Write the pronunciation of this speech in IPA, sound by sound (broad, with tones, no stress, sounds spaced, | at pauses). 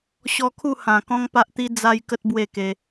ɕ ɔ˧ kʰ u˥˧ h ã˨˩ k ɔ̃˦ ŋ p a˦ ʔ t̪ i˦ d͡z a˦ j k ə˦ t̚ b w e˥˧ k e˧